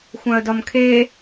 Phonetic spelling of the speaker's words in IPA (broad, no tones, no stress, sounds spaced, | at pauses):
xʷ ã ə̯ d ɒ m kʰ e